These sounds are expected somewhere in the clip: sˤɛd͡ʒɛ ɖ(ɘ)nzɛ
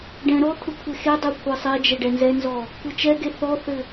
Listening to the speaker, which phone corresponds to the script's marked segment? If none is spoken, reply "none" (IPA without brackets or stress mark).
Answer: ɛ